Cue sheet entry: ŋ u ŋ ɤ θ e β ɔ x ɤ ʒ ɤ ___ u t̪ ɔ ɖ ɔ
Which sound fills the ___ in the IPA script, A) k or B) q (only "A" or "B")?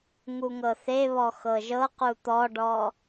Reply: B